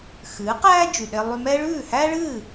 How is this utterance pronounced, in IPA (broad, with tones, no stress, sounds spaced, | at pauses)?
x ɨː˩˥ q æː˥ d͡ʒ y˩ ɗ e˧ lˠ y˧ m ɛ˥ ɭ ʉː˥˩ h æː˥ ɭ ɨː˥˩